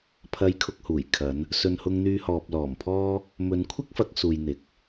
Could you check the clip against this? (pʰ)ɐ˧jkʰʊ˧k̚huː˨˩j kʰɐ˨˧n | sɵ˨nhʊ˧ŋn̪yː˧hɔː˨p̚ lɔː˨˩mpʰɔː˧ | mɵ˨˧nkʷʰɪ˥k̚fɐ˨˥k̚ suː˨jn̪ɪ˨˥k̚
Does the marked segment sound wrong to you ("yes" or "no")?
no